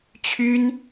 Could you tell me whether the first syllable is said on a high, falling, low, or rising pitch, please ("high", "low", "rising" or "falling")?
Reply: high